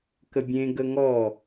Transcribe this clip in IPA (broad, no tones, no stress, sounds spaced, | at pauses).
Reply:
k ə bʲ ẽ ɡ ə ŋ ɔ